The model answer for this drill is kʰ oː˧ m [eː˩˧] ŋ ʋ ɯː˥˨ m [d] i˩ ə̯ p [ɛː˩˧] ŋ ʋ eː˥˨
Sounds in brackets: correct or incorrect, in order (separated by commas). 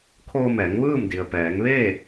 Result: incorrect, correct, correct